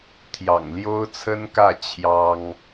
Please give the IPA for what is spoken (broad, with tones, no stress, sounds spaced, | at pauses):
t̪ʰ j ɑ̰˨˩ ŋ l j o˥ ʊ̯ t͡sʰ ə˥ n k ä˥˩ t͡ɕʰ j ɑ˥ ŋ